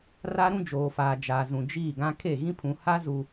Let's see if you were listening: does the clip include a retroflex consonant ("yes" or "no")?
no